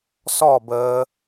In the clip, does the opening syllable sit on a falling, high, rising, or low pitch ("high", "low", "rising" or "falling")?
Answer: falling